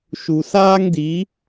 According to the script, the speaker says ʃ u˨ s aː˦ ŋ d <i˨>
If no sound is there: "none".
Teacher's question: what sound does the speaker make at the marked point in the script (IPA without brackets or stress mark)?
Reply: i˨˦